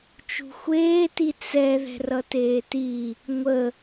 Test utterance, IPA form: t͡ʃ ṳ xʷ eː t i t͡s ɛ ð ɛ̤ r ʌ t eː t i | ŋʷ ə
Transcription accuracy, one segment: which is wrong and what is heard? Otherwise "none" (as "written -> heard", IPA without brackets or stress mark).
none